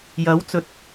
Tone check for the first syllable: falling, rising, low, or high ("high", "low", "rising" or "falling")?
rising